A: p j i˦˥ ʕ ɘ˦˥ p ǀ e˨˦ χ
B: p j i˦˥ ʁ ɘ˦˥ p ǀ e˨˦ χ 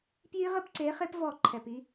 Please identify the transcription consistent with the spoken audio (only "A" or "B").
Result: B